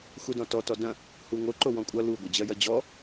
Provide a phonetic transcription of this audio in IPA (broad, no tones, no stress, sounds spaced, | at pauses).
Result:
x u d ɔ̃ t ɔ t ɔ d ɐ̃ | h u ŋ o ǃ o w ɔ̃ kʷʼ ʌ l u ɡʷ ɐ d͡ʑ ɜ j ɐ d͡ʑ ɔ